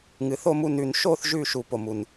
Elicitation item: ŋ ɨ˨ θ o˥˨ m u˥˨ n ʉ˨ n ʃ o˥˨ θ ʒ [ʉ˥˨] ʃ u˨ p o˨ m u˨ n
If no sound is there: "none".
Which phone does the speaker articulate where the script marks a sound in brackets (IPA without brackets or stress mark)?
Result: ʉ˥˨